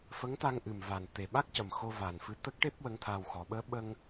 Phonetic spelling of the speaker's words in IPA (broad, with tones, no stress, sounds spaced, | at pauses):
f ə˧˥ ŋ t̪ a˧ ŋ ʔ ɨ˨˩ m v a˨˩ n t̪ e˨˩ ɓ a˦˥ k̚ c ə˨˩ m x o˧ v a˨˩ n f ɨ˧ t̪ ə˦˥ k̚ ʈ e˦˥ p̚ w ə˧˥ ŋ t̪ʰ aː˧ w x ɔ˨˩˦ ɓ əː˧˥ ɓ ə˧ ŋ